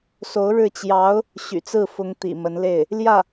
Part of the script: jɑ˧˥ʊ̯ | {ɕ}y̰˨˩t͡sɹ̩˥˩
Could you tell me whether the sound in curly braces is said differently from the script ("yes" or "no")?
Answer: no